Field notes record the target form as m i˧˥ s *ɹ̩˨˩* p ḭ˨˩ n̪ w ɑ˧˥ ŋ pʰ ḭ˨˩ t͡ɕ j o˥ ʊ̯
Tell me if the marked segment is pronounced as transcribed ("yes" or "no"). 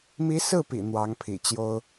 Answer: no